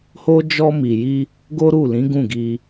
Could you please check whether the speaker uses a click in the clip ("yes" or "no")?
no